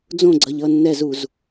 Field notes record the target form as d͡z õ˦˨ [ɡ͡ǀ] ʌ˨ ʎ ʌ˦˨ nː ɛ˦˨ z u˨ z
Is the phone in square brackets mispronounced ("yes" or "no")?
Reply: no